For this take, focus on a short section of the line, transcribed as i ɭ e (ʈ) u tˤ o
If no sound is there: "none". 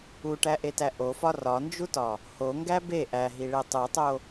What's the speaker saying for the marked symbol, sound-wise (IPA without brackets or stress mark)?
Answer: tˤ